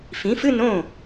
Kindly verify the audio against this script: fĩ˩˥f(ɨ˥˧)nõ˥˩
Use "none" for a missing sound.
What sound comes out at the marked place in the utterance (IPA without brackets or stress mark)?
ɨ˥˧